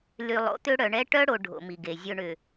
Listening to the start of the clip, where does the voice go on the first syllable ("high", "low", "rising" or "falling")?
low